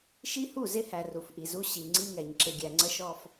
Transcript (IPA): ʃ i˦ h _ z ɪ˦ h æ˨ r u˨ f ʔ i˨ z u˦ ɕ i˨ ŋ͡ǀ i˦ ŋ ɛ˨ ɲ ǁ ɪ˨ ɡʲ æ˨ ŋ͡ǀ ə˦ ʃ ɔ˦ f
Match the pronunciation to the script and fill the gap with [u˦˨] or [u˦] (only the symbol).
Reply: u˦˨